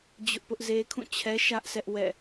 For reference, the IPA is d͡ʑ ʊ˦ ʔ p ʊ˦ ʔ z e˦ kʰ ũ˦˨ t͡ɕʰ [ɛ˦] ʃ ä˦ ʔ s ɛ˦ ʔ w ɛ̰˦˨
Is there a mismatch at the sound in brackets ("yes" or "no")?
no